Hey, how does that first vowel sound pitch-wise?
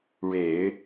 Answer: low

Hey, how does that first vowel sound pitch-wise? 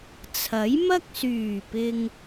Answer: rising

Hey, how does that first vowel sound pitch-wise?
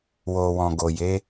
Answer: low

